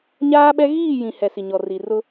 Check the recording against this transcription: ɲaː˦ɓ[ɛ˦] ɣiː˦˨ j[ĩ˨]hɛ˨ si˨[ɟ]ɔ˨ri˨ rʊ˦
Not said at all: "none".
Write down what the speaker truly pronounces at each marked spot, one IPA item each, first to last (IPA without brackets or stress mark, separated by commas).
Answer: ɛ˦, ĩ˨, ɲ